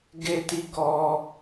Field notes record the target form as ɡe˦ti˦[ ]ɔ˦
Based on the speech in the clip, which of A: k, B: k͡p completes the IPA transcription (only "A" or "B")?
A